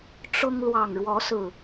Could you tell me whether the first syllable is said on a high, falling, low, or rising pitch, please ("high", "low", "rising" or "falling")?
high